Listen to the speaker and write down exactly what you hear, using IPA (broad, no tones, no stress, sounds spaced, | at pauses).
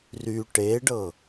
r y ʈ e ɖ ɤ